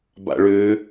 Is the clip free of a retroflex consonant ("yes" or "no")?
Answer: no